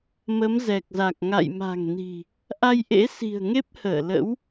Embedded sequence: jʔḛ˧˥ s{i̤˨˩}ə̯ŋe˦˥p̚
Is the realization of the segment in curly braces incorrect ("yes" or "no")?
no